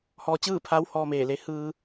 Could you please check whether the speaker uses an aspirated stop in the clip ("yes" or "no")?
yes